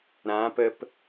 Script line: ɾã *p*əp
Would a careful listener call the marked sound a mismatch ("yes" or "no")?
no